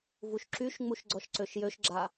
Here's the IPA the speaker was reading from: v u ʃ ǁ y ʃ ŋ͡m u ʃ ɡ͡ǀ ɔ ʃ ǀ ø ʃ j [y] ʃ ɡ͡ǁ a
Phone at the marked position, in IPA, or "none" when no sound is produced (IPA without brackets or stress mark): ø